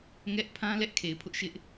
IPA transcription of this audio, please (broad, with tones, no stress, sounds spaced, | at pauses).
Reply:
ŋ ɛ˦ ʔ pʰ ã˦ l ɛ˦ ʔ kʰ e˨ ɪ̯ pʰ ʊ˦ ʔ ʃ ɪ˦ ʔ